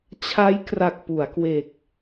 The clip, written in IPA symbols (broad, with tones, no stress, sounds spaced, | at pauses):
t͡ɕʰ a˦˥ j k r a˨˩ k̚ p u˩˦ a̯ k w e˨˩ k̚